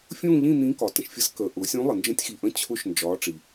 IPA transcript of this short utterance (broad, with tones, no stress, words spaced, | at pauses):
fʲũː˥˧ʎĩ˥˧ n̪ĩː˧˥kɒ˩tə̃˩ʃfʲə˧˥s kəː˩ʔʊː˩˧ sʲũ˧˥lˠə˩ nd͡ʒə̃˧˥tʲxi˩ʔə̃˧˥ t͡ɕʰʊ˧˥ʃnd͡ʒɒː˩˧ ʈ͡ʂi˩